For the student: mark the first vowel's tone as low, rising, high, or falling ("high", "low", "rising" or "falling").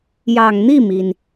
low